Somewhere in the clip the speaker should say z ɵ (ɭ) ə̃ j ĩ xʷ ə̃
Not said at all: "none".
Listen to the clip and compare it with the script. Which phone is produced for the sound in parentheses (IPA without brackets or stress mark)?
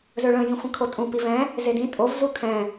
ɭ